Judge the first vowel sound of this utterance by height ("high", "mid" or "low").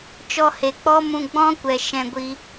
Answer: mid